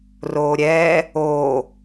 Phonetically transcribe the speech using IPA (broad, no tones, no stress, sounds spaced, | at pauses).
r oː ɾʲ ɛː | oː